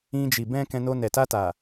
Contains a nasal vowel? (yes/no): yes